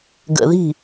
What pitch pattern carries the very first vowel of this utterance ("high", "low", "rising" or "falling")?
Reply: low